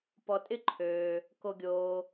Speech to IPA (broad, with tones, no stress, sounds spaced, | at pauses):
p ɔ˨ tʼ ɪ˦ ǃʰ øː˩ | k o˨ ɡʲ oː˩